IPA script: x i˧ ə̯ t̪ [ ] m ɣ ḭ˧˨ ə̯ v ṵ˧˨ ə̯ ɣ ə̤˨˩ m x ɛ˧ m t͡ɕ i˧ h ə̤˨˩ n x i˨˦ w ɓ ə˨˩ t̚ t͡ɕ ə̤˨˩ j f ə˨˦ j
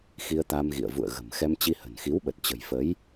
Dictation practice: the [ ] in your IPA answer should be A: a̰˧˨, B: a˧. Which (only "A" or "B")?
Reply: B